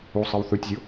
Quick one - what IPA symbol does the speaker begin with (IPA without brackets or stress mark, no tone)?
u